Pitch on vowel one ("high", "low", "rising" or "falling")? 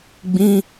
high